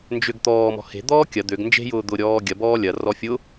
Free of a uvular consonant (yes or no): yes